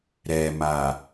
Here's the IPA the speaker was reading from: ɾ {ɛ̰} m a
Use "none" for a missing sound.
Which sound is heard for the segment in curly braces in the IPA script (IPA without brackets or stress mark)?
ɛ